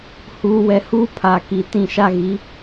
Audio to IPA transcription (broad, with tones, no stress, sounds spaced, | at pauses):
h uː˨ w ɛ˨ h uː˦ pʰ aː˨ k i˨ t ĩ˦˨ ʃ a˦ ɣ i˨˦